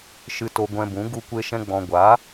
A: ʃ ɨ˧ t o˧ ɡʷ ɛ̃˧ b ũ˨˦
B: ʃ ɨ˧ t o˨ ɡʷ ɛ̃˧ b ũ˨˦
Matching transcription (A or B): A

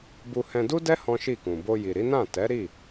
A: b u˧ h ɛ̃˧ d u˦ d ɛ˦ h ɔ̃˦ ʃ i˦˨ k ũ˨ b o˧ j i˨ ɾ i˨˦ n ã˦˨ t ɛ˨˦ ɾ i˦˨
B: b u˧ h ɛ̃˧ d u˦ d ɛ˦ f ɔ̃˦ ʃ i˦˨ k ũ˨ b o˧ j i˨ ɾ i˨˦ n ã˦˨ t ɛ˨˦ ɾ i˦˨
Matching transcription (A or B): A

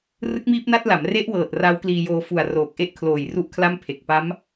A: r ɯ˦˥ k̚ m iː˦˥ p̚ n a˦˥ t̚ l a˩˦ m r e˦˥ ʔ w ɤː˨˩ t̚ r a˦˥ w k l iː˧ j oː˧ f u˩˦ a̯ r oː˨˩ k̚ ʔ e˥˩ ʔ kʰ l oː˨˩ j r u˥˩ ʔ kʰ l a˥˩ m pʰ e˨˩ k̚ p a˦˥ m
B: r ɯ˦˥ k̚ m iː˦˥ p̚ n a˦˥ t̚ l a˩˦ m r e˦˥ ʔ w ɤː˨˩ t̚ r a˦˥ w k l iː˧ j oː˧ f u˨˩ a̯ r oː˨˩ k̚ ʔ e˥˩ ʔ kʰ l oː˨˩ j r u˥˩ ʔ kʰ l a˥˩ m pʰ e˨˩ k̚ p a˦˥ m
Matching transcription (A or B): B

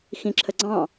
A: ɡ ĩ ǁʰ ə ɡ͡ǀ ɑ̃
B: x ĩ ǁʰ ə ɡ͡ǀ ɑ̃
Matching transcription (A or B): B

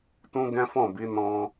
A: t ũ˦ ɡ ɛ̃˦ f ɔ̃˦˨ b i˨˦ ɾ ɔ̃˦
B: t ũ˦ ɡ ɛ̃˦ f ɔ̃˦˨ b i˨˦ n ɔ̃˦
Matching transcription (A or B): B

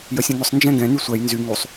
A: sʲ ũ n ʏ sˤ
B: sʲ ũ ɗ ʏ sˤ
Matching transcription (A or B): A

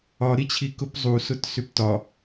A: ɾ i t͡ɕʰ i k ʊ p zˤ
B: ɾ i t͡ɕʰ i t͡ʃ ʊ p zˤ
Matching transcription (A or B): A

